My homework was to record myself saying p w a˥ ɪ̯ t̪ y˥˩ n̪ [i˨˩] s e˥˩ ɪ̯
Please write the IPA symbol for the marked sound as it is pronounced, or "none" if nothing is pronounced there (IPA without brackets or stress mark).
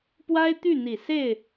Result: i˨˩